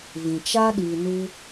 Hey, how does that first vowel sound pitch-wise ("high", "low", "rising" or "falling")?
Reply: low